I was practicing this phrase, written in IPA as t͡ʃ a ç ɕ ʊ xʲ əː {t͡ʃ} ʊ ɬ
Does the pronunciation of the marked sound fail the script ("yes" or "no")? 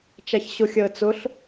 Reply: yes